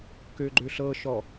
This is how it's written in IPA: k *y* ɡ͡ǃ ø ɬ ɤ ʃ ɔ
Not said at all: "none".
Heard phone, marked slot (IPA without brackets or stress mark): ø